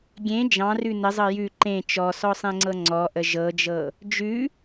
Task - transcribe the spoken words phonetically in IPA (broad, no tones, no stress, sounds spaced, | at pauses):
ɡʲ ẽ d͡ʒ ɑ̃ r ʉ n ə zˤ ɤ j ʉ ǃ ẽ t͡ʃ ɔ s ɔ sˤ ẽ ŋ͡ǀ ɤ ŋ͡ǀ ɔ ʔ ə ʒ ɤ d͡ʒ ɤ | d͡ʒ ʉ